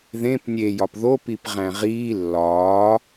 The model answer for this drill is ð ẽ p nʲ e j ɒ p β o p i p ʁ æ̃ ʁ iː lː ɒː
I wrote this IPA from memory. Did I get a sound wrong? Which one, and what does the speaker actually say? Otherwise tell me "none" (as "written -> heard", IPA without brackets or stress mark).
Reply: β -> ð